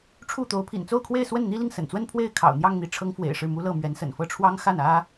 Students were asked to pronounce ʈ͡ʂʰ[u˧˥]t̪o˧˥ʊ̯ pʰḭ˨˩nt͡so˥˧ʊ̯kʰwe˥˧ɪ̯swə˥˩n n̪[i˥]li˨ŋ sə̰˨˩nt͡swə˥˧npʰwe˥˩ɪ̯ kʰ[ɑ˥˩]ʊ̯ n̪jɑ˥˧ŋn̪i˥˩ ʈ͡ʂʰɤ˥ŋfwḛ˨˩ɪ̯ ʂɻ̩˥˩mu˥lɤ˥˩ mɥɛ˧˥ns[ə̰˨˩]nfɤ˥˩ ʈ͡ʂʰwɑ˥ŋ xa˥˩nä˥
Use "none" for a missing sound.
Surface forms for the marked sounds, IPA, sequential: u˥˩, i˥, ɑ̰˨˩, ə̰˨˩

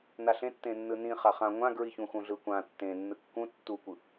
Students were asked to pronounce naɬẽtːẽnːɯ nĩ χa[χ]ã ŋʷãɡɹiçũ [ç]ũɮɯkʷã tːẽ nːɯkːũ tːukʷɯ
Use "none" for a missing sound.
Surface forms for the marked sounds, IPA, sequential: χ, x

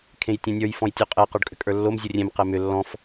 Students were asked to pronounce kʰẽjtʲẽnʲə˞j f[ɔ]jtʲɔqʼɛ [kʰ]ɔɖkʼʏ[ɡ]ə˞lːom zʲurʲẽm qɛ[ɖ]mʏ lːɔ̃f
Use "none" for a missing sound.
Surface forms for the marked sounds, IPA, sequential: ɔ̃, q, kʼ, none

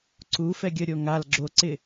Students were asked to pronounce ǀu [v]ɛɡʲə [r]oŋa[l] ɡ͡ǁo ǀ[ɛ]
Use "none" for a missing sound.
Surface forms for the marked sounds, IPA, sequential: f, ɾʲ, l, ɪ

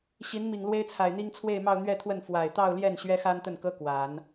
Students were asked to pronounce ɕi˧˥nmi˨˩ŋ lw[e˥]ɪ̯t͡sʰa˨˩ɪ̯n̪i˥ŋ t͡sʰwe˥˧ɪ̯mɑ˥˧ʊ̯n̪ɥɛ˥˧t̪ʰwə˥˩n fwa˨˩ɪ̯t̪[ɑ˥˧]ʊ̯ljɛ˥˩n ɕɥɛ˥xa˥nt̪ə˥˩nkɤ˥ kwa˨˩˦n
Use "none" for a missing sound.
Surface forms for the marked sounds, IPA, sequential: e˥, ɑ˥˧

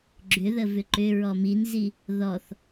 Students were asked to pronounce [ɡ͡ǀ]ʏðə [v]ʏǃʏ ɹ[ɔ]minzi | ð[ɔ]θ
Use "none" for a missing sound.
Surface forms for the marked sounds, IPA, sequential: ɡ͡ǁ, v, ɔ, ɔ

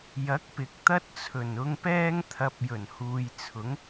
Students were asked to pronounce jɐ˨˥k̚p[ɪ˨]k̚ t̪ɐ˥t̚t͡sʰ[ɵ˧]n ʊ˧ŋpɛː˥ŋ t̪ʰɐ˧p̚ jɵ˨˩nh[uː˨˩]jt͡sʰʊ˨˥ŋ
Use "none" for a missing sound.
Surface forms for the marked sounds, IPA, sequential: ɪ˨˥, ɵ˨˩, uː˨

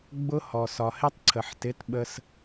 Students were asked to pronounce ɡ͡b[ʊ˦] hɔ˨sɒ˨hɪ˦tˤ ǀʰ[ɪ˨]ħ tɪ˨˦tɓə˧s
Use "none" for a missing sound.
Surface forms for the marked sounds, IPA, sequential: ʊ˦, ə˨

